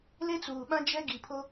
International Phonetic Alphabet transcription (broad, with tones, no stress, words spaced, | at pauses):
le˦t͡suː˨ɓã˦ d͡ʒɛ˦ ɡi˨pʰo˦